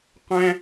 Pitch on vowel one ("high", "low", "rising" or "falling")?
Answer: high